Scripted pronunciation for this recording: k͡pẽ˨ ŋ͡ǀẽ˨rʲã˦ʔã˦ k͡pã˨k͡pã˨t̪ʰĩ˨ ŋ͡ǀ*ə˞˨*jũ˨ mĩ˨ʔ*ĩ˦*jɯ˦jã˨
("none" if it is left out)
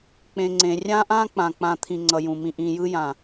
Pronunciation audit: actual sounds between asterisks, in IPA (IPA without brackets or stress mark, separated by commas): ʌ˨, ĩ˨